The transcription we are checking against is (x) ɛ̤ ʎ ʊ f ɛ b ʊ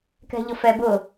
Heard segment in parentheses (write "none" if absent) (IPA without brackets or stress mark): k